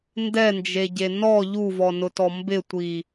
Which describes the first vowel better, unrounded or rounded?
unrounded